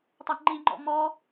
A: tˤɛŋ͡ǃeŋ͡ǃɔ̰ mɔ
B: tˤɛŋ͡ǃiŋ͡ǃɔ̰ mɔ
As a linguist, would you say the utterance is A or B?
B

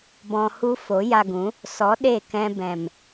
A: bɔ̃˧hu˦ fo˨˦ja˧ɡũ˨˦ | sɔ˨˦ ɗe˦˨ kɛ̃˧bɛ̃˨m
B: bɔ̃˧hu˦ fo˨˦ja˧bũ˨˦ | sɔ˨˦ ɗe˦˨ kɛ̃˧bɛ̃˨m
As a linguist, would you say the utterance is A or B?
A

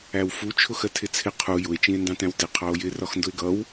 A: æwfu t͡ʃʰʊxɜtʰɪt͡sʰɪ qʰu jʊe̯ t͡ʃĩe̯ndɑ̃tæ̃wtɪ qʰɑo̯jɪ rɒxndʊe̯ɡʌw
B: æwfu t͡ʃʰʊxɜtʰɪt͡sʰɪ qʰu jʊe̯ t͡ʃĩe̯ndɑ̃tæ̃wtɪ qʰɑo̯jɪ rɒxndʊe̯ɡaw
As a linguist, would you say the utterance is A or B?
A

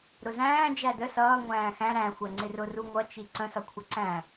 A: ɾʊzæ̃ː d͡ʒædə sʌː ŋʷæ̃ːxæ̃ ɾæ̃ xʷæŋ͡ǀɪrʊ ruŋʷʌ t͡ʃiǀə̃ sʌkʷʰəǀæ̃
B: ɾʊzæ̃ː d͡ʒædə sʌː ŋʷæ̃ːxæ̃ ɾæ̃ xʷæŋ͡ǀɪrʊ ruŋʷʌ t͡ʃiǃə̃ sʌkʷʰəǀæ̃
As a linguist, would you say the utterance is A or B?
A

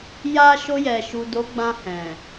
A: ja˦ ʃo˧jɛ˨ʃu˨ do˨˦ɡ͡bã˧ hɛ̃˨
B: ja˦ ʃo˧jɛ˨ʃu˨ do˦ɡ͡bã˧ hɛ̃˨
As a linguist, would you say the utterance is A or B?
A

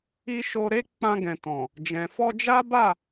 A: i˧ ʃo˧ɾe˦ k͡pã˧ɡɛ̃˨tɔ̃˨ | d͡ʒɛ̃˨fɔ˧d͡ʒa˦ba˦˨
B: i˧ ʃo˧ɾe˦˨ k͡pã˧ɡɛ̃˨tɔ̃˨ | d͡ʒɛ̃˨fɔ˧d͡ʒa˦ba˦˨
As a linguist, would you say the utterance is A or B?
A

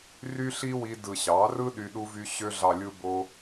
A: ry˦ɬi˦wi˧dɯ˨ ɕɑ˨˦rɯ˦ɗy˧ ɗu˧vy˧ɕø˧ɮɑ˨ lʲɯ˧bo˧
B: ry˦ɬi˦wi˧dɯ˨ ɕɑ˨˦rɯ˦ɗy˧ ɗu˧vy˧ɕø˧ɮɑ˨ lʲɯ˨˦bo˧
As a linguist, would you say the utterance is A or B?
A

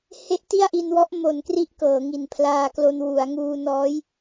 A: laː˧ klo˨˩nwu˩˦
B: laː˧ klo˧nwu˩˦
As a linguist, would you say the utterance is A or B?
B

